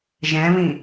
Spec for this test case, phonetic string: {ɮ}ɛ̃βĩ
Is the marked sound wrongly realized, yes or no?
yes